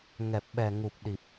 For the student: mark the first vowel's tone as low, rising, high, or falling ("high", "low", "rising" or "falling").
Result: low